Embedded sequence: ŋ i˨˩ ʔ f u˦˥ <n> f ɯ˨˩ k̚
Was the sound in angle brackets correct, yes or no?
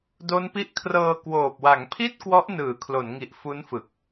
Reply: yes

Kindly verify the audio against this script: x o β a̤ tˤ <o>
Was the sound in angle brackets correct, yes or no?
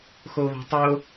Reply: yes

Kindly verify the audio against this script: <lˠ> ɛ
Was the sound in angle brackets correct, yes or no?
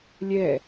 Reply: no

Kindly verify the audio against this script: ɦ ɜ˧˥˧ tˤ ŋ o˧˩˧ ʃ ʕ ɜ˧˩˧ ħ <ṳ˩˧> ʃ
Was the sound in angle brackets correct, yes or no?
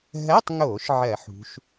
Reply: yes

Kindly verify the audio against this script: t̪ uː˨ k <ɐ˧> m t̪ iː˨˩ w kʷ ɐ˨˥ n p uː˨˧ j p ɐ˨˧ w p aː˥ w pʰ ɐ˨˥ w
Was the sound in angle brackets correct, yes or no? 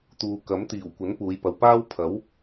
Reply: no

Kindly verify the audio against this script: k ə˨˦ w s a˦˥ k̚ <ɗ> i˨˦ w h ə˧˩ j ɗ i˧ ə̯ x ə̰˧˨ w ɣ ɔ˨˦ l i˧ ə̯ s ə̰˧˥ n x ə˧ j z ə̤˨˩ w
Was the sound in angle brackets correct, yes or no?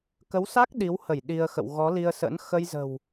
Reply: yes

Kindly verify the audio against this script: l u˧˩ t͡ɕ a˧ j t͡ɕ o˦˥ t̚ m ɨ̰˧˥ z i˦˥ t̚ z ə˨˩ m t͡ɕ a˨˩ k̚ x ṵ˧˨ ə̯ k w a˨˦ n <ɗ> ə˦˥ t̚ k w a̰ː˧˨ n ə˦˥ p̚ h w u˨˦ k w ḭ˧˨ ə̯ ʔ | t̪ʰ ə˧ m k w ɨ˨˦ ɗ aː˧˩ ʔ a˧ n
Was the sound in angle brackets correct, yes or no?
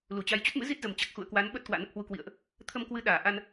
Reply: no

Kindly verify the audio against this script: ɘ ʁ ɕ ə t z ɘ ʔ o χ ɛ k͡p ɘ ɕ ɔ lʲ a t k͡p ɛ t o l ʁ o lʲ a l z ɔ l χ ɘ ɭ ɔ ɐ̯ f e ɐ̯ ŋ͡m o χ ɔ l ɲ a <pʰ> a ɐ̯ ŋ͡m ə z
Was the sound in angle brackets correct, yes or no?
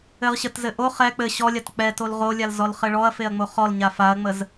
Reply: no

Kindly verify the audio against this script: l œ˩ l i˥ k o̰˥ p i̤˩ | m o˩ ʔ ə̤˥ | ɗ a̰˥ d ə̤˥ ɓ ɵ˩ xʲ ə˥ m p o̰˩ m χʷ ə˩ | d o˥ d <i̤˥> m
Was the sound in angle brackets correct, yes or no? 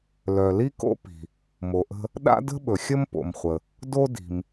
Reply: no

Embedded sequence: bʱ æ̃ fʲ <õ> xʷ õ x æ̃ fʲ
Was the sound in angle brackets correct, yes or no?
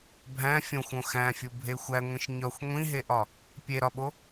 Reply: yes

